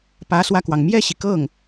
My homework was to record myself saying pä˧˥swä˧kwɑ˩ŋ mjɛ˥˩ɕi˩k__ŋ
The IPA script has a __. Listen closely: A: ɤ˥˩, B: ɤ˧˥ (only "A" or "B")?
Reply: A